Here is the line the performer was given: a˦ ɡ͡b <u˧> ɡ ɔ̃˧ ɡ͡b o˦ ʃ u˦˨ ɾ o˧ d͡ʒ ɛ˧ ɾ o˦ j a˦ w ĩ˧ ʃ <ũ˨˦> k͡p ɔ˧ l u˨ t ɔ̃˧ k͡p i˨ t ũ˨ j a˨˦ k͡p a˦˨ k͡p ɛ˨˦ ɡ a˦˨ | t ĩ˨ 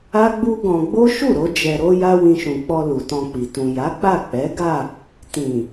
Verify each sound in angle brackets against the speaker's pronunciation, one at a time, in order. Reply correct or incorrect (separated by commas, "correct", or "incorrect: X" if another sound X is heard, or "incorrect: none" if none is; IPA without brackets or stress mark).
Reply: incorrect: u˦, incorrect: ũ˨